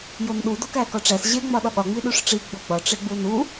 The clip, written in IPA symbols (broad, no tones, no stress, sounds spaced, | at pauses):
j o n ɗ u d o k æ k ɒ ʈ͡ʂ æ s ʑ e ŋ͡m ɒ ɗ ɒ ɠ ɒ ŋ͡m i ɗ u ʂ ʈ͡ʂ i ɡ͡b o ɡ͡b ɒ ʈ͡ʂ e ɡ͡b u n u